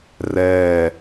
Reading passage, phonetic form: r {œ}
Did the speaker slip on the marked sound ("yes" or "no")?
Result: yes